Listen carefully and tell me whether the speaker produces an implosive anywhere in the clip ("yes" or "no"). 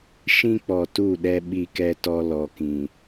yes